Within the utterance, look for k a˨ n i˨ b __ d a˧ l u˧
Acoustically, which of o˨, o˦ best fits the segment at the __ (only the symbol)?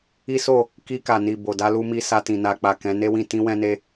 o˨